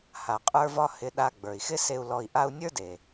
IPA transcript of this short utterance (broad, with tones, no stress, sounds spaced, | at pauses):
h a˩ qʼ ə˞˧ v ɒ˧ h ɪ˧ ɗ a˧ ɡ͡b ə˞˩ i̯ x ɪ˥ s e˧ u̯ l ɔ˧ i̯ ʔ a˥ u̯ nʲ ə˞˥ d e˩